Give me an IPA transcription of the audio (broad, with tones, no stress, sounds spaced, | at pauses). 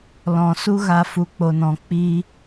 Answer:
l ɔ̃˨ s u˦ ɣ a˧ f u˨ k͡p o˨ n ɔ̃˨ k͡p i˧